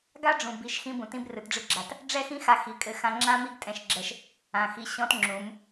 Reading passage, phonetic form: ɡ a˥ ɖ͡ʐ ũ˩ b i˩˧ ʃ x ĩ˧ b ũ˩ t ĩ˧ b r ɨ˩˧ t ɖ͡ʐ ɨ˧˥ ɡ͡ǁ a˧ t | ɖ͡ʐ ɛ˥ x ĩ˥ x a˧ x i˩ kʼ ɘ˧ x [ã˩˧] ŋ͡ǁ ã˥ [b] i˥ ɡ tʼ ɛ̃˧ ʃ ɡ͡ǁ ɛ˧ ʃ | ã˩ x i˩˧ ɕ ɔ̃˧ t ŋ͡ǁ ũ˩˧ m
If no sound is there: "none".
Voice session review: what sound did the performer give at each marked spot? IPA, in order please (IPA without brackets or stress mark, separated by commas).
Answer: ã˧, m